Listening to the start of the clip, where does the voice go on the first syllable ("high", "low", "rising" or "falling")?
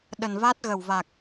low